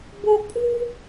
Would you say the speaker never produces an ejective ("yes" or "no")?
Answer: no